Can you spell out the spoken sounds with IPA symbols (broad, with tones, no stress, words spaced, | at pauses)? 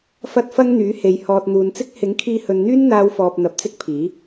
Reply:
fɐ˧t̚fɐ˧ŋ n̪yː˨˥he˨˧j hɔː˨t̚n̪uː˨nt͡sɪ˥k̚ hɪ˨˥ŋkʰiː˧hɵ˨nn̪yː˥n n̪aː˧wfɔː˨p̚ n̪ɐ˨˥p̚t͡sɪ˥k̚pʰiː˨˥